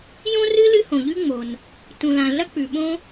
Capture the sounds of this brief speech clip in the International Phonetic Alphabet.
j õ˥ r ɨ˥ l ɨ˥ h õ˩ ʎ ʉ˥ ŋ͡m o˩ n | t ũ˩ l ã˩ ɮ ɐ˥ k͡p ʉ˩ ɓ õ˥

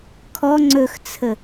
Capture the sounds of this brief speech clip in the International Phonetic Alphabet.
kʰ ɔ ŋ͡ǀ ɵ x t͡sʰ ə

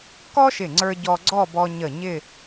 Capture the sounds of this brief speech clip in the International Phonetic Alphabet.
k ɔ˥ ʃ ɪ˧˩ ŋ͡ǀ ə˞˧ ɟ ɔ˧ ɡ͡ǀ ɔ˥˧ b ɔ˧ ɲ ə˧˩ ɲ ɪ˥˧

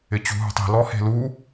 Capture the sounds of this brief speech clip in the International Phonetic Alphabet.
ɪ t͡ɕ ṳ ɦ ṳ tˤ e̤ l ɔ h e̤ l u

